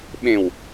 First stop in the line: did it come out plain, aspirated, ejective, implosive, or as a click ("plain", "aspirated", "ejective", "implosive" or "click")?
implosive